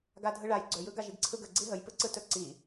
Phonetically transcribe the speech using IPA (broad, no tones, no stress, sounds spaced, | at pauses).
ɡ a dʱ ɯ ɭ a j ɡ͡ǀ ɵ j ɯ ɡ a ʒ i ɡ ǀʰ ɯ ɡ ə ɡ͡ǀ i ɦ ə j p ɯ ǀ ɯ t ɵ ǀ i